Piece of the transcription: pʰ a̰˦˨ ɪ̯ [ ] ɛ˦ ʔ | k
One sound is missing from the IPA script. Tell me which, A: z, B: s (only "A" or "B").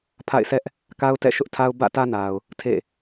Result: B